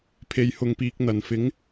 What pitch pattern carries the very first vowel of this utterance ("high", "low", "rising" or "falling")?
low